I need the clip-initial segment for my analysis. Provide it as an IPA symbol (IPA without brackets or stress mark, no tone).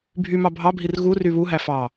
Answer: bʱ